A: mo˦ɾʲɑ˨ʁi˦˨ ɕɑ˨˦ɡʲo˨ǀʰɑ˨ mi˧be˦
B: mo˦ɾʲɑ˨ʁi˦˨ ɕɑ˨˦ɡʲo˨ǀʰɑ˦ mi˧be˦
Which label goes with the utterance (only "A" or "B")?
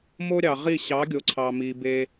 A